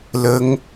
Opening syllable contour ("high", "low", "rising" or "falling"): rising